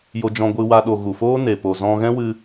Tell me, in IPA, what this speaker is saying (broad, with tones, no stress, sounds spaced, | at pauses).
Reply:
j o˧ d͡ʒ ɔ̃˧ ɡʷ ɨ˧ w a˧ ɗ o˨ ɣ u˨ f oː˦ n e˨ p o˨ z ɔ̃˧ ɣ ɛ̃˦ w ɨ˧